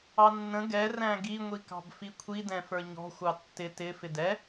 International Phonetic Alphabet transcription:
ɑ nː ə̃ ɡ ɛ r æ̃ ɡ i ŋʷ i k ɑ̤ b f i kʷʰ i d ɛ̃ f ə˞ ɲ ɔ̤ xʷ ɑ tː ɪ t ɪ f ɪ d ɛ

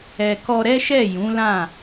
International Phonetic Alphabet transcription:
ɛ˨ k ɔ˧ ɾ ɛ˦ ʃ ɛ˦˨ j ũ˨˦ l ã˦˨

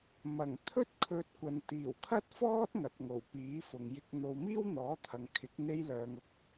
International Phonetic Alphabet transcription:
m ɐ˨˩ ŋ t̪ʰ ɵ˥ t̚ kʰ ɵ˧ t̚ kʷ ɐ˨ n t̪ iː˨˩ w kʰ ɐ˥ t̚ f ɔː˥ t̚ ŋ ɐ˨ t̚ ŋ o˨˩ w p iː˨˥ f ʊ˨ ŋ j ɪ˧ k̚ n̪ o˧ w m iː˥ w n̪ ɔː˨˥ t̪ʰ ɐ˨ ŋ kʰ ɪ˨˥ k̚ n̪ e˧ j l œː˨ ŋ ʊ˥ k̚

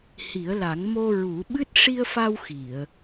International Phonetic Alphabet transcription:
h i˨˩˦ ə̯ l a˨˩˦ ŋ m o˧ ɹ u˨˩˦ ɓ ɨ˦˥ t̚ ʂ i˧ ə̯ f a˧ w x i˨˩˨ ə̯

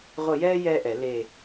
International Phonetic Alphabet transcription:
ʁʷ ə˦˨ j ɛː˥ j ɛː˥ ʔ ɛ˨˩˦ l e˦˨

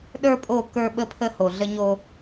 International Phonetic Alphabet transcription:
ɗ ə˞˦ pʼ o˦˨ k ə˞˦ ɓ ə˦ pʰ ə˦ h o˨ ɮ ə˦ ɲ o˦

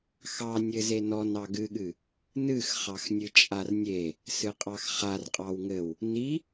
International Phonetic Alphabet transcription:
x ɑ nʲ ɘ z e n ɔ n ɑ ɡ ɨ ɠ ɨ | n ɨ x χ ɑ x nʲ ɨ t͡ʃʼ a r nʲ e | s ɨ qʼ ɑ x χ a r qʼ ɑ w ŋ ɘ w | n i

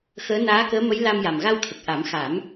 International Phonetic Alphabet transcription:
x əː˧˥ n aː˧˥ k əː˧˥ m ə˧˥ j l a˧ m j a˨˩ m ɣ a˧ w t̪ʰ ə˨˩ k̚ ʔ a˨˩˦ m x a˨˩˦ m

